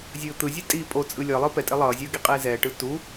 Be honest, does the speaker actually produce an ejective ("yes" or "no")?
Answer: yes